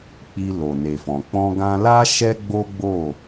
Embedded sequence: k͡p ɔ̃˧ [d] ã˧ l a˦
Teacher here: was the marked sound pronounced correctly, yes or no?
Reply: no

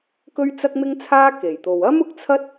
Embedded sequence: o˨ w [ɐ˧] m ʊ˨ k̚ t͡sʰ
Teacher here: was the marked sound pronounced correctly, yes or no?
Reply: no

